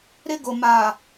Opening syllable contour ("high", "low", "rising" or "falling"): high